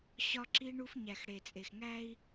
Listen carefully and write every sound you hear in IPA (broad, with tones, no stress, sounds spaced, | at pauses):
ɕ ɒ˦ ǁ i˦ ɳ u˦ f ɲ æ˨ x ɽ e˨ t͡sʼ e˨ x ŋ æ˦ i̯